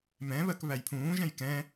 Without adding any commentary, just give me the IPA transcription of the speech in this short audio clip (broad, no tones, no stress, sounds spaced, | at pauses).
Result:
m ɛ̃ β ɜ k β æ j pʰ ũː ʒ ɛ̃ j k ɛ̃